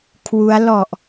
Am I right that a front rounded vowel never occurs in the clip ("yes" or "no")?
yes